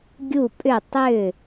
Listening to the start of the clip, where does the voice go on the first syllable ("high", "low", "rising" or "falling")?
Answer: falling